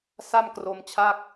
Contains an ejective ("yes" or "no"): no